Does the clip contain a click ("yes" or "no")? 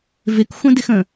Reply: no